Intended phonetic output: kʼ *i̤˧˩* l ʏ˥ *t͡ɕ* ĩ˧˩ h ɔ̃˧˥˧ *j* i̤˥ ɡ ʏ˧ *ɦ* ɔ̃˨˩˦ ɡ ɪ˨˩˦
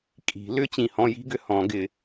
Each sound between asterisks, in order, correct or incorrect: incorrect, correct, correct, incorrect

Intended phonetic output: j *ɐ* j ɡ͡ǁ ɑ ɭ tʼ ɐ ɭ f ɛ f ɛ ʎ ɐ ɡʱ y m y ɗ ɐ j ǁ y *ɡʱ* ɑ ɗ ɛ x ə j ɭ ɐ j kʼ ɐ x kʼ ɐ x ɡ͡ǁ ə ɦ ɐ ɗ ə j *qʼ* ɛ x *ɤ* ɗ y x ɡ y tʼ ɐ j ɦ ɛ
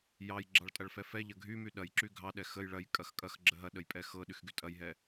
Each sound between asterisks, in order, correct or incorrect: incorrect, correct, incorrect, correct

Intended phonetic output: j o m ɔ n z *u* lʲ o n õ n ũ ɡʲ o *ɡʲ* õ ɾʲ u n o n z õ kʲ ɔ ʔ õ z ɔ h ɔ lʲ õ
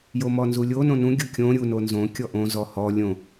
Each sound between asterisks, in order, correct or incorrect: correct, incorrect

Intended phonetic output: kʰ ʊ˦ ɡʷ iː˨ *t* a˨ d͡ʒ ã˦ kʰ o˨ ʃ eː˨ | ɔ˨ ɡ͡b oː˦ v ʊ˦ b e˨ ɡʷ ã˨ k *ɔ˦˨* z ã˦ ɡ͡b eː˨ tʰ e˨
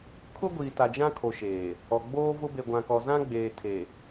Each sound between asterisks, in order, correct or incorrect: correct, incorrect

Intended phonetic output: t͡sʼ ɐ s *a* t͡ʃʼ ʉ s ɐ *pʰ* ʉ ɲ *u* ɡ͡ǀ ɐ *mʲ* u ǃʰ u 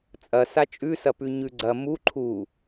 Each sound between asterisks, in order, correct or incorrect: correct, incorrect, incorrect, incorrect

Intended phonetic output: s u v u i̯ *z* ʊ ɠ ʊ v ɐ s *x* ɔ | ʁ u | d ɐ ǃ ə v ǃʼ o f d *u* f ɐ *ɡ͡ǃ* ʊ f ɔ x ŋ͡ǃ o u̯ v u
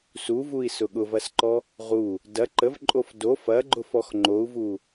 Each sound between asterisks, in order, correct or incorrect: incorrect, incorrect, incorrect, correct

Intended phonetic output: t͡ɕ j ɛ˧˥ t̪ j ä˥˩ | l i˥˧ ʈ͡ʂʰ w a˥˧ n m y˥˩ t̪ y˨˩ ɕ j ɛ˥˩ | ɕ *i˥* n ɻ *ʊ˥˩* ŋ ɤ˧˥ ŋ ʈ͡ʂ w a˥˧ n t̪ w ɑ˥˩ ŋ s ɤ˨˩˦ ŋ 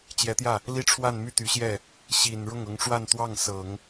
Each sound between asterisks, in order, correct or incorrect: incorrect, correct

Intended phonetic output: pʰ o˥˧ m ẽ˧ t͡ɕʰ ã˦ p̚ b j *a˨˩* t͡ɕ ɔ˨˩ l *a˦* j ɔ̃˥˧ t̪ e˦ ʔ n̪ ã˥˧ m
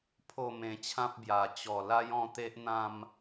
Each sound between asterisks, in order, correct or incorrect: correct, correct

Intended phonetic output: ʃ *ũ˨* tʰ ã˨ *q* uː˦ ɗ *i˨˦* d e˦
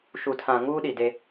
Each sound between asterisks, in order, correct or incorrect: incorrect, incorrect, incorrect

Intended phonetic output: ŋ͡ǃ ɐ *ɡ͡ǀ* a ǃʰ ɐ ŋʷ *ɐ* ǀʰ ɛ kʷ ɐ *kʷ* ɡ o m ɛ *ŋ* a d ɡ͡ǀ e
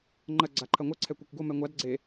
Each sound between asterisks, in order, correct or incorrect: correct, correct, correct, incorrect

